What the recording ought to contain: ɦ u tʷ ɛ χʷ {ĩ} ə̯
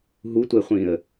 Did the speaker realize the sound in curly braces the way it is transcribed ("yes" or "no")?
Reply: yes